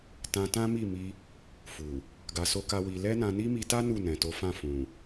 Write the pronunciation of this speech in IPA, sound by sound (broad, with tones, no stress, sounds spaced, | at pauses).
t ã˧ t ã˦ m i˦˨ m i˧ | f u˨ | ɡ a˧ s o˦ k a˦ w i˧ l ɛ˦ n ã˧ n i˦ m i˧ t a˦ n u˦˨ n ɛ̃˨ t o˨˦ f ã˦˨ f ũ˨